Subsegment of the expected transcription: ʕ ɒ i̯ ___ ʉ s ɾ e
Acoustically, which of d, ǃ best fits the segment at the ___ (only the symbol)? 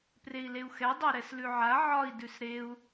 d